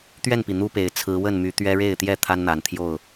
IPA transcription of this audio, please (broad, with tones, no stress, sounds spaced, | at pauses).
t̪ ɥ ɛ˥˨ n p i˩ n̪ u˦ p e˨˩ ɪ̯ t͡sʰ ɹ̩˨˦ w ə˥˨ n m y˨˦ t̪ ɥ ɛ˦ ɻ e˥˨ ɪ̯ t̪ j ɛ˥˨ t̪ʰ a˦ n n̪ a˨˩ n t̪ʰ j o˥˨ ʊ̯